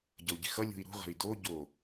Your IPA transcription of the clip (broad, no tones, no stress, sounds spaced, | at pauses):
ɟ ʌ u̯ ɟ i̤ x ʌ lʲ ṳ i̯ ɾ ṳ ʁ ə̤ i̯ d o ɟ o